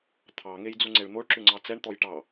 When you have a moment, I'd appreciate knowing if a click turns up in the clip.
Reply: yes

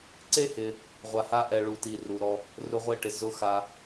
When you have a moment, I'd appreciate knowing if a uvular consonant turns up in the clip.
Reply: yes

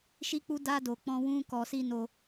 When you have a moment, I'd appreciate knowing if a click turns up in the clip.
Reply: no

